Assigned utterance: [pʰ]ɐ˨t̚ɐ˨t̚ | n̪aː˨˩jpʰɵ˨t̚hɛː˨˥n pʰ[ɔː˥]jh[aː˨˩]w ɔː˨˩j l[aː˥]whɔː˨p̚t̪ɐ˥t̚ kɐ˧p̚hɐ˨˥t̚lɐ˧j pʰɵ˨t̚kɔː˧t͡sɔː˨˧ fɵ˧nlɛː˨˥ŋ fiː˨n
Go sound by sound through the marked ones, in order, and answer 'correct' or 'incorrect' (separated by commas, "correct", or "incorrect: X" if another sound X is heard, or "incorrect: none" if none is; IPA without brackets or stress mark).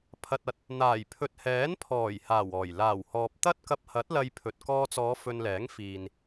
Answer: correct, incorrect: ɔː˨˩, correct, incorrect: aː˨˩